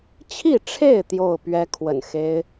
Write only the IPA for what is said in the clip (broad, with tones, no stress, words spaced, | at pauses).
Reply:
t͡ɕʰi˥˨ʈ͡ʂʰe˥˨ɪ̯ t̪jo˥˨ʊ̯pɥɛ˦ kʰwə̰˨˩nxe˦ɪ̯